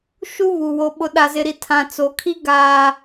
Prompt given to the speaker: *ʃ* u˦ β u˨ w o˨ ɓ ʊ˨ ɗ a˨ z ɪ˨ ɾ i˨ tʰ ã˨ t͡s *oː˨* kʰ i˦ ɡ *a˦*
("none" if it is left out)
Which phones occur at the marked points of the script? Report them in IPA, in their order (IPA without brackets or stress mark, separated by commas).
ʃ, o˨, aː˦